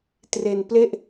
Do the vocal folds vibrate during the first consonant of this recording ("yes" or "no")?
no